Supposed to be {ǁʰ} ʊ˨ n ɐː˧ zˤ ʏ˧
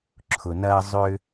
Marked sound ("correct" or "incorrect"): correct